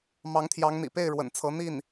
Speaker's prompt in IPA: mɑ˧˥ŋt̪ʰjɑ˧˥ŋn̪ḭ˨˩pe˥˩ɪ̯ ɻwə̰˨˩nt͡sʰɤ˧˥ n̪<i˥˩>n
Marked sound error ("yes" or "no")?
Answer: no